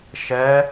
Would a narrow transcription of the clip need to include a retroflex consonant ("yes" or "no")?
no